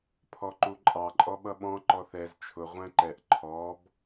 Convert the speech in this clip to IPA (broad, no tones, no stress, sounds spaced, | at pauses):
pʰ ɔ ǃ u ǃʼ ɑ ǃʼ ɔ ɓ ʌ ɓ ɔ̃ ǃ ɔ θ ɛ z t͡ʃʰ ʊ ʁʷ æ̃ ǃ ɛ ʔ ǃʰ ɔ b